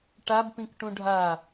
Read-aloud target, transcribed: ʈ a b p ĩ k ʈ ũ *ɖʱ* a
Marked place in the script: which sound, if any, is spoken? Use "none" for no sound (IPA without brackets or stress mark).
ɖʱ